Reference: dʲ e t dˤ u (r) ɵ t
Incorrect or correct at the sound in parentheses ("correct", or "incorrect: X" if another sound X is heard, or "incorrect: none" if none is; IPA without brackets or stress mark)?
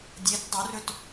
correct